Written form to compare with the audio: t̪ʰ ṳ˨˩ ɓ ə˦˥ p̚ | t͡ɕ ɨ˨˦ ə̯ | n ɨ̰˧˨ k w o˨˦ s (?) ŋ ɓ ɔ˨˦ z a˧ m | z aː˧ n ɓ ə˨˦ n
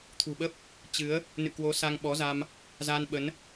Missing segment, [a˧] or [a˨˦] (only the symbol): a˧